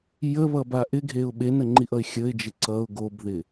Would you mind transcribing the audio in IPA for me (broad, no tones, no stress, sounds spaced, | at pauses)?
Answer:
j ə β ʌ b a ʔ ɪ ɡʱ e ʊ̯ ɓ e n ə ŋ͡ǃ i ʔ ʌ ɪ̯ xʲ ə ɪ̯ d͡ʒ ɪ ǀ ʌ ʊ̯ ɡ o b ð ɪ